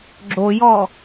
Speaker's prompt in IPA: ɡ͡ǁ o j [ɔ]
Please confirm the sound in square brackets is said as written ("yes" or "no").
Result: yes